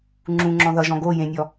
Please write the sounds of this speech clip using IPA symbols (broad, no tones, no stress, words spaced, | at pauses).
ŋ͡ǁũŋ͡ǁɔ̃ ðʌʒɔ̃ ɡo jẽnʲɔ